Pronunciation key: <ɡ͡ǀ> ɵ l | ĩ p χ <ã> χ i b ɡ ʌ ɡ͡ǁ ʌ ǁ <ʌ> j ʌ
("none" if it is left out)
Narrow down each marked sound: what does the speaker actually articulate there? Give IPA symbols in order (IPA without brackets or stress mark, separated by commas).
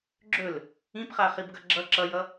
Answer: ɡ͡ǁ, a, ʌ